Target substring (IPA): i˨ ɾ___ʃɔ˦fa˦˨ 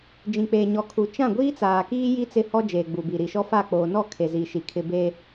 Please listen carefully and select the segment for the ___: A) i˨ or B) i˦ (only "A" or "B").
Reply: A